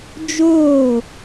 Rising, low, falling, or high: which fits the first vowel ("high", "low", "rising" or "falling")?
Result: falling